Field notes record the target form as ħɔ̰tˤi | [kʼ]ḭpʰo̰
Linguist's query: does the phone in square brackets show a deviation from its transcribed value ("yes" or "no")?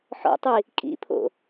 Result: no